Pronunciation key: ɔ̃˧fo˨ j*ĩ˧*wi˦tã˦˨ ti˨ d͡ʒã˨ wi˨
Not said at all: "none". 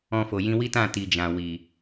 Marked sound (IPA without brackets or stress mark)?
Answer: ĩ˧